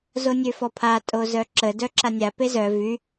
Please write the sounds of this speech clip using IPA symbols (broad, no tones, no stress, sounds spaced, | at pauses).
z o nʲ ø f ɔ pʰ a tʼ o z œ ǁ ə d œ ǁ a nʲ a p e z œ v y